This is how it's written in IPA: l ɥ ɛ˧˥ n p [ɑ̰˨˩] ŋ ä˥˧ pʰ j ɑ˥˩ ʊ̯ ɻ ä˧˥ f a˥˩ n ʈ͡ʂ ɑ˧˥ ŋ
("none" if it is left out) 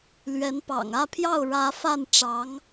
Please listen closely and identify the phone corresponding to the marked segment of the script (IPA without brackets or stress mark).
ɑ̰˨˩